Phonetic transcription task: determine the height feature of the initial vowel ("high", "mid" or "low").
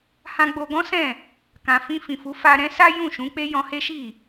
low